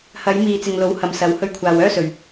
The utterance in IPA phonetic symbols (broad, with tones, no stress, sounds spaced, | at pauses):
h ɐ˨˧ j m iː˨ t͡s ɪ˨ ŋ l o˨˥ w h ɐ˨˧ m s ɐ˨˧ w h ɵ˧ ɥ kʷʰ aː˨ w œː˥ s ɵ˨ ɥ